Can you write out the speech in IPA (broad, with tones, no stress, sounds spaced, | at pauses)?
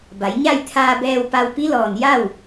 b a˩˧ j ɲ a˥˨ j t̪ʰ aː˧ b ɛː˧ w p a˧ w p i˧˥ l ɔː˩ n j a˥˨ w